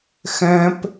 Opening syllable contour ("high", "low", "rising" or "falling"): high